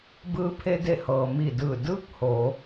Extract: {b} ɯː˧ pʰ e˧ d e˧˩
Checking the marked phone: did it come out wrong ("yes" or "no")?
no